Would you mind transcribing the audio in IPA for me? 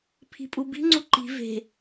pʰ i̤ pʼ u b i̤ ŋ͡ǀ u ǃ i̤ v e̤

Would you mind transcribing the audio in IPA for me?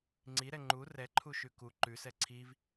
ŋ͡ǀ i ɾ ɛ ŋ͡ǃ u r ɛ ǃʰ u ʃ ʉ k u ǃ ʉ s ɛ ǀʰ i v

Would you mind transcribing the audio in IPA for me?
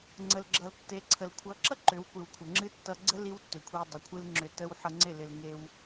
ŋ͡ǀ ə˨ l ɡ͡ǁ ʌ˨ l tː e˨˦ ǀʰ ə˨ l kʷʰ ʌ˨˦ ǁ ʌ˦ ǃ ʏ˨˦ w kʷ ɨ˨ w kʷʰ ə˨ ŋ͡ǁ ɨ˦ tː ʌ˧ ɡ͡ǀ ə˦ l i˦ w tː ʏ˨ kʷʰ i˧ w dˤ ə˨ kʷʰ ɨ˦ l ŋ͡ǁ ʏ˧ t ə˦ w ħ ʌ˧ ŋ͡ǀ ɪ˦˨ l ɪ˧ l ŋ e˧ w

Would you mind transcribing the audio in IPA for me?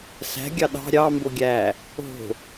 s æ̤ ɡʲ ɑ ɗ ɑ̤ ɾʲ ɑ m b o ɡʲ æ | o̤

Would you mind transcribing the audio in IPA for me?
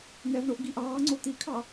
n̪ ɛ v ɳ o ʔ ɡ i ʔ ɑː ŋ͡ǀ o t̪ i kʰ ɑ

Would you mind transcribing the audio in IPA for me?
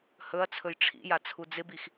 h ɵ ɐ̯ t͡sʰ ɵ j ʈ͡ʂʰ ḭ j a t͡sʰ u d͡z ɪ b i x

